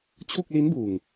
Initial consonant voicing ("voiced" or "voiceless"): voiceless